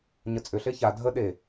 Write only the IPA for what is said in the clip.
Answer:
ɲ ə t͡sʼ ʏ ɬ e ç a dʱ ə ɗ e

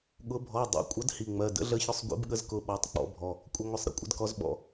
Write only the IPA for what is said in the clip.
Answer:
ɠ ʊ˨˦ bʱ ɔ˩˧˩ dˤ ḭ˩˧˩ kʷʼ ʌ˨˦ d h i˩˧˩ ŋ͡m ɜ˩˧˩ d ə̰˨˦ ɮ ə˨˦ ç ʊ˨˦ sˤ ɡʷ ḭ˨˦ b ɠ ə˨˦ z k ʊ˩˧˩ ɓ ɔ˩˧˩ tˤ k͡p ɔ̰˨˦ bʱ ɔ˩˧˩ | kʷʼ ɪ˨˦ ŋʷ ə˩˧˩ sˤ ɾ ə̰˨˦ kʷʼ ə̰˨˦ d k ɔ˨˦ z ɓ ɔ̰˩˧˩

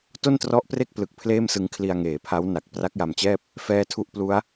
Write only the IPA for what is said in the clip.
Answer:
t o˥˩ n t r ɔ˦˥ ʔ p r e˥˩ k̚ p l ɯ˨˩ k̚ pʰ l eː˥˩ m s ɯ˧ ŋ kʰ l i˧ a̯ ŋ eː˩˦ pʰ a˦˥ w n a˨˩ k̚ p r a˦˥ k̚ j a˧ m t͡ɕ ɛː˥˩ p̚ | f ɛː˦˥ tʰ u˦˥ ʔ p l u˦˥ a̯

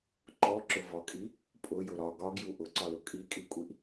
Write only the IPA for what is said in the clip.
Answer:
ǃ ɔ ǁ ʊ v ɒ kʼ i | pʼ ʊ j ʊ ɾ ɒ ɡ ɒ ɡ j u ʔ ʊ ǀ ɒ l ʊ kʼ i kʼ i kʷʼ i ʔ

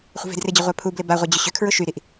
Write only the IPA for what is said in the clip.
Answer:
χʷ ə̤ v e̤ d r ɪ d͡ʑ ə ʁʷ a pʰ u b l ɪ b a ʁʷ ɐ d͡ʑ ʊ ɕ ʏ kʰ ɹ ʊ ʃ y ɾ i ʔ

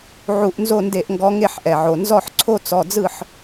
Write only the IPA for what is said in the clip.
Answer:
ʕ u˧˩˧ ʔ n z o˦˨ n d e˧˩˧ ʔ ŋ ɡ ɔ˨˦ ŋ e˦˨ ħ ʔ ɛ˩ ʕ o˩ n z ɔ˦˨ ħ ǀʰ o˦ t͡s ɔ˩˧˩ d͡z ɯ˦˨ ħ

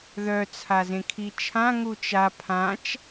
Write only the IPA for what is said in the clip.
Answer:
ð œ t͡sʰ a z ẽ kʰ i t͡ʃʰ ã ŋ u t͡ʃ a pʰ ã t͡ʃ

